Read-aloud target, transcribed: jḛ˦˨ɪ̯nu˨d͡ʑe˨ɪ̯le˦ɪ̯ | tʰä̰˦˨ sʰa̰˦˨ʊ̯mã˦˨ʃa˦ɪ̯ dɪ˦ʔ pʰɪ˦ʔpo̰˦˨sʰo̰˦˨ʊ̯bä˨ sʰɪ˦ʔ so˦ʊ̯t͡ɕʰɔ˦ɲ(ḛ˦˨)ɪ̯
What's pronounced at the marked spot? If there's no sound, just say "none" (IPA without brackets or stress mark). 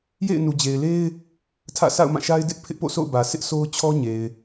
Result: e˨